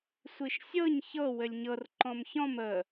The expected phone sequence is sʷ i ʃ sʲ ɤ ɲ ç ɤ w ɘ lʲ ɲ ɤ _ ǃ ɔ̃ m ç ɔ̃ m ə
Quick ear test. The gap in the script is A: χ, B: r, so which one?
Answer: B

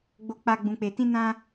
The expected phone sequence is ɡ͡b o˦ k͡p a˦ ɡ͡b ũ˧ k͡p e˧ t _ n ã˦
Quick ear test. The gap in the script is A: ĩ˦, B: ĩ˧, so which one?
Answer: A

